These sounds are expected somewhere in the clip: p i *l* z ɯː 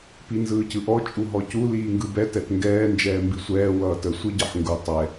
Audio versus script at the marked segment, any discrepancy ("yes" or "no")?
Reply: yes